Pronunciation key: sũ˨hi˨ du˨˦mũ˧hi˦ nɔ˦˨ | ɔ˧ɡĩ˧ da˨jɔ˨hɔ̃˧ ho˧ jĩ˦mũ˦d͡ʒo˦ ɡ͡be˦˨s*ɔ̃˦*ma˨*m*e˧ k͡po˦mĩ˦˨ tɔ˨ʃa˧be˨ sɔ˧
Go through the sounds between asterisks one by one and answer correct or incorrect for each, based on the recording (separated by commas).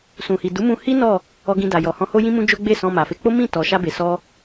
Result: incorrect, incorrect